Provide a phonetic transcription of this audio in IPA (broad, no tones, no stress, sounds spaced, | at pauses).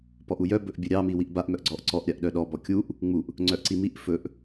p ɔ ʔ u j œ b ɵ ʔ bʲ ɵ ɾʲ ɑ m i w i ʔ b a ʔ m œ ʔ ɡ͡ǀ ɔ ʔ ǀ ɔ ʔ ɾʲ a ʔ ɗ œ ɗ ɔ b ɔ kʲ u ʔ | ŋ͡m u ʔ | ŋ͡ǀ œ ʔ ǀ i m i ʔ f ɵ ʔ